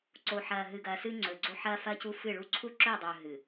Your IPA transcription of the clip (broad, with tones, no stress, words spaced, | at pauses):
ǀo˨ħɐː˨ɦɨ˨ɡɐː˨ sɨ˦ŋ͡ǀɵ˨ɡ͡ǀo˦ ħɐː˦fɐː˦cu˦ fɨ˦˨ɭu˦ ǀʰu˦ǁɵː˦˨dˤɵː˨ ɦɨ˨